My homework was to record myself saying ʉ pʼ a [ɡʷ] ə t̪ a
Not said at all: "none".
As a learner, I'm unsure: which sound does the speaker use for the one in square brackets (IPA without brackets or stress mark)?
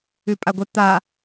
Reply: ɡʷ